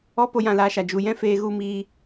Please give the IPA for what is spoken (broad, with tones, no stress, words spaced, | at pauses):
ɔ˧ po˧ jã˧laː˧ʃa˨ d͡ʒu˨ jɛ̃˦ feː˧ɣu˧ miː˧